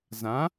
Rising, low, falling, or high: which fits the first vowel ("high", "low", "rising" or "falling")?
rising